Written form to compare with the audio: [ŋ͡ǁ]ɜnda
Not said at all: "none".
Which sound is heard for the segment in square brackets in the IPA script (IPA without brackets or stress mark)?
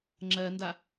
ŋ͡ǁ